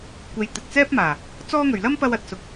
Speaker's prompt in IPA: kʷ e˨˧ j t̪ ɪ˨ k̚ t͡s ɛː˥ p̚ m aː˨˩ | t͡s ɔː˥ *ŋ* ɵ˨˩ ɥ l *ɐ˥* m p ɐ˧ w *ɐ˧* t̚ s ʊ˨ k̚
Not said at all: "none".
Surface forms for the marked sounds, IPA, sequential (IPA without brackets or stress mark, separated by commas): ŋ, ɐ˥, ɐ˨